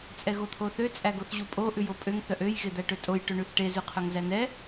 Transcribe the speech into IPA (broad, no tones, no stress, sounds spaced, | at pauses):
t͡sʼ ɛ ɣ o t̪ʰ o θ ø t͡sʼ æ ɡ o θ ʑ u pʼ o ʔ ʉ j o pʼ ø ŋ θ œ ʔ ø j ɣ e d̪ æ ʈ ø tʼ o j ʈ ø ɳ ʉ θ ʈ e z ʉ qʰ œ ŋ z æ n ɛ